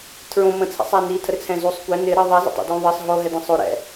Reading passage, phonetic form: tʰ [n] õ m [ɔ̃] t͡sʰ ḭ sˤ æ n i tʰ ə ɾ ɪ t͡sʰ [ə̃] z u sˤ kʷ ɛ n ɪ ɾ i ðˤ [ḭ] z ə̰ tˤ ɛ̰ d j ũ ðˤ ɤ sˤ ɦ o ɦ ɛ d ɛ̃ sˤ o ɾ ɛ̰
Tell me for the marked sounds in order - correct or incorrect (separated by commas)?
incorrect, incorrect, incorrect, incorrect